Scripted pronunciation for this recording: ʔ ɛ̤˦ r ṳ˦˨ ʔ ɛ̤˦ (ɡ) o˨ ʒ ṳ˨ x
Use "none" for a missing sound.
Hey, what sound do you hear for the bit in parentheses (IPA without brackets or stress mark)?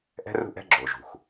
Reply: ɡ͡ǁ